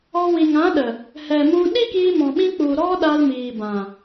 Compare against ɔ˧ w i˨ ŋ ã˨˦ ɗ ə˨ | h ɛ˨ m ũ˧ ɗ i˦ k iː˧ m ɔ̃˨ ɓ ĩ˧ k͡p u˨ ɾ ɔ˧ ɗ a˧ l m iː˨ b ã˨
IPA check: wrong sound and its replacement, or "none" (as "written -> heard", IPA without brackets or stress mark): none